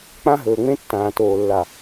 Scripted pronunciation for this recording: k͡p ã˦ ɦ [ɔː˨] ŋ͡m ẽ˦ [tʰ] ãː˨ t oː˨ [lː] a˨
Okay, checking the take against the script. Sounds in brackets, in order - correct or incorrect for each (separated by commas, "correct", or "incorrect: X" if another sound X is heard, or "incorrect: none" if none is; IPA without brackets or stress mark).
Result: incorrect: ɵː˨, incorrect: tː, correct